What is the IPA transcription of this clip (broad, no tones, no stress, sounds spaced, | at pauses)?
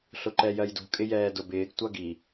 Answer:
ɬ ʊ ǃ ɛ j ɜ j d ṳ kʼ ɪ j ɛː d ʊ b ɪː ɡ tʷ ʌ ɡ i